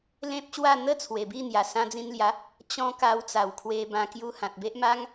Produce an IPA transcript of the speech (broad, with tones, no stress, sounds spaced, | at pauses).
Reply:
l ẽ˦ p̚ ɕ w a˥˧ n̪ ə˦ t͡sʰ w e˨˩ b i˥˧ n̪ j a˨˩ s ã˧ d͡z ĩ˧ n l j a˨˦ | t͡ɕ ɔ̃˧ k a˧ w t͡s a˨˩ w kʰ w e˧ b ã˧ k j u˧ h ã˨ t̚ b e˦ ʔ m a˦ ŋ